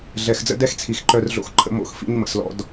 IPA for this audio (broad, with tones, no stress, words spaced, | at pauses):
ɮɛ˨xd͡zə̰˦ dɛ˦xt͡sʰi˨xǃœ˧rɮo̰˧x ǃʰə̰˧mo̰˧xfḭ˧ɲ mə̰˨slɔ̰˧d